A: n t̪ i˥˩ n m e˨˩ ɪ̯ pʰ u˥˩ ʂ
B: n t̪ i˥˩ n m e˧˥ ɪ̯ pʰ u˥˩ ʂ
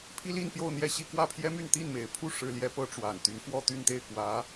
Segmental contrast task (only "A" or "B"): A